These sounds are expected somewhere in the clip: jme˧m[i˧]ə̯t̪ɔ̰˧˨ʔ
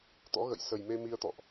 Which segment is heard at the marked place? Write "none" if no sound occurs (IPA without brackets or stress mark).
i˧